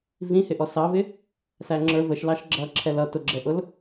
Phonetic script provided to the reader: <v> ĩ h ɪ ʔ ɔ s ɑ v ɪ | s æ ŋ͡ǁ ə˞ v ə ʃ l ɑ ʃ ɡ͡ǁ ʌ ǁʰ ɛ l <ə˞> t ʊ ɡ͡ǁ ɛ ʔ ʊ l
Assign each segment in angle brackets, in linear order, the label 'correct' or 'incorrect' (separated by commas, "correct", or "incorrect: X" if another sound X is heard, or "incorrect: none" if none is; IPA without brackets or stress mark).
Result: correct, incorrect: ʌ